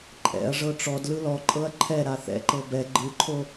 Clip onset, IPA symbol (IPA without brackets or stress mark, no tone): ǃʼ